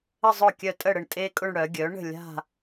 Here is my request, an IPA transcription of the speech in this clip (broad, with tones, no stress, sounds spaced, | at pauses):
ə˥˧ zˤ ʊ˥˩ kʲ œ˥˩ tʼ ə˥˩ ɽ ə˥˩ ɳ tʼ e˥ kʼ ʊ˥˧ ɳ ɽ œ˩˥ ɡʲ œ˩˥ ɳ ə̤˥˩ lʲ a̤˥˧